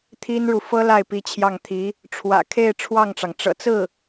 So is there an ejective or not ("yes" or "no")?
no